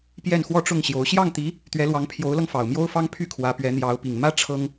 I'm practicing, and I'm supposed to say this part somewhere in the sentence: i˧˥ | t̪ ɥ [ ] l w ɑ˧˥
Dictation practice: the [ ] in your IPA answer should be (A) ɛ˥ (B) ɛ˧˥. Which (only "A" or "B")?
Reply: B